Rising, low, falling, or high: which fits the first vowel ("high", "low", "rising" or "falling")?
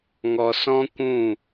low